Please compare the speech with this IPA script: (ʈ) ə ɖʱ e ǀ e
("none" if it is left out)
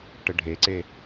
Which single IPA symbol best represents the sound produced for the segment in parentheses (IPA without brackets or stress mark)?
ʈ